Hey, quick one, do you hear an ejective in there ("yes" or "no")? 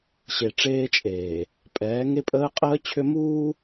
yes